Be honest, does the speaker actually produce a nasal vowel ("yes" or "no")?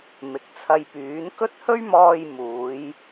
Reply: no